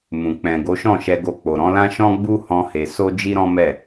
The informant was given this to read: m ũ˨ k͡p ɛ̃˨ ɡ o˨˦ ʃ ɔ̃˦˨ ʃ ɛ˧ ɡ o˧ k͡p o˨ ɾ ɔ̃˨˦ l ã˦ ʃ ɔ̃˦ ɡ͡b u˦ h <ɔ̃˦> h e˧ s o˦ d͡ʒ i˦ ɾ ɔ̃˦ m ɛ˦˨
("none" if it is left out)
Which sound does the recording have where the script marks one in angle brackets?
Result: ɔ̃˦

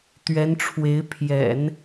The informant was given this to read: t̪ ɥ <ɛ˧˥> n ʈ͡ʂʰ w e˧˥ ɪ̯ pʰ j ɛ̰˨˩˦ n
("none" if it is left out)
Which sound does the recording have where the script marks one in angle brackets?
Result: ɛ˧˥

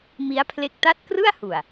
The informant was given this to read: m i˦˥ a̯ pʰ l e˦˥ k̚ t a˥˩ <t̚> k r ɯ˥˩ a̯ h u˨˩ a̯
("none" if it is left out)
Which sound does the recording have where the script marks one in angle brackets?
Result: t̚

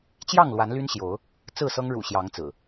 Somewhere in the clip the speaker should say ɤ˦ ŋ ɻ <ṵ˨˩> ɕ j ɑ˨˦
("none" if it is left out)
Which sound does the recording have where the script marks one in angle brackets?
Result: ṵ˨˩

